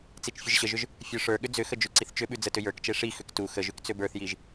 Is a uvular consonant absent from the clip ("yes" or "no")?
yes